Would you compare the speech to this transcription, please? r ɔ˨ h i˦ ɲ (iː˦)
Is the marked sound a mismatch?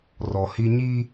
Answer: yes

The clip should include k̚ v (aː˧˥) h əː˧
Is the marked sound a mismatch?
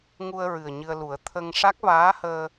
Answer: no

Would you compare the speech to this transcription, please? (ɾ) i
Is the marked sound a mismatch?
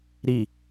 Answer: no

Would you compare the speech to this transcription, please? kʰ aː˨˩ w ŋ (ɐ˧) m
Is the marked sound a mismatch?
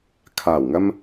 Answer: no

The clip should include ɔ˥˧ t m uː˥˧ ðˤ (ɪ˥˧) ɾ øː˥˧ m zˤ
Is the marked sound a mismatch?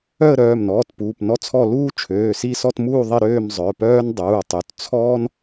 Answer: yes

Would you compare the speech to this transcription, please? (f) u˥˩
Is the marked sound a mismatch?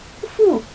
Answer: no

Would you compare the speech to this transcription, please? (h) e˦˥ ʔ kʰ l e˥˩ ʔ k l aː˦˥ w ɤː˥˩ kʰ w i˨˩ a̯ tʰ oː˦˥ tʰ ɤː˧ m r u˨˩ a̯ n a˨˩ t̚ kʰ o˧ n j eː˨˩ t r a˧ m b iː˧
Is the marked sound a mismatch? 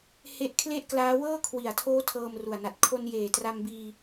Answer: no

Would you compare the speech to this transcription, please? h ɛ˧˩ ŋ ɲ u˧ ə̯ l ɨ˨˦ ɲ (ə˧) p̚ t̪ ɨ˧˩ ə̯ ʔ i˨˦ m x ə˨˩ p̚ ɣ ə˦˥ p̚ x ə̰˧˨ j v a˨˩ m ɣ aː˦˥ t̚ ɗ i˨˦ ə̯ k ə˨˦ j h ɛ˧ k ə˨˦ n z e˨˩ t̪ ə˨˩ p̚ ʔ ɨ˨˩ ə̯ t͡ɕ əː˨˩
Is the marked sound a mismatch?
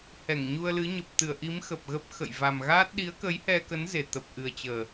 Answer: yes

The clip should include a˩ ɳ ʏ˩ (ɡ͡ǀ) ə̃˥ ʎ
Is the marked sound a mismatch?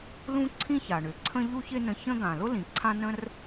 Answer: yes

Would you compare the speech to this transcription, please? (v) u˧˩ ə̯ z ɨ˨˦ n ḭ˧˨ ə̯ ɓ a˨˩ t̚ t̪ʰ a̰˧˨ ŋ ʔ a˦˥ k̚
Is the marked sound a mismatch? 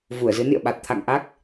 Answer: no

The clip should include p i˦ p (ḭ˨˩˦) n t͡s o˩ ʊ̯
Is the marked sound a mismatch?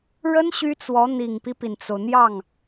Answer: yes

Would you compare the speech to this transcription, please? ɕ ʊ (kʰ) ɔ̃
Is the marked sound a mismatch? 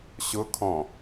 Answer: no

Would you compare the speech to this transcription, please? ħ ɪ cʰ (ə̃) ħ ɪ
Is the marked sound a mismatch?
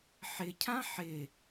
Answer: yes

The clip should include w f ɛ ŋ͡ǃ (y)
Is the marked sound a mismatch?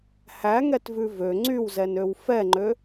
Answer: yes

